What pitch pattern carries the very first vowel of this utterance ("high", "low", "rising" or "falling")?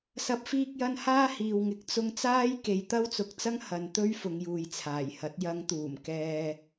rising